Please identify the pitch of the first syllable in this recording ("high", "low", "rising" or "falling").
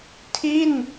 falling